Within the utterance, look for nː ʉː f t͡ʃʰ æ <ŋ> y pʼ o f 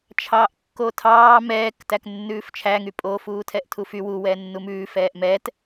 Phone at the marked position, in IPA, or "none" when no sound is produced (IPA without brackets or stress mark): ŋ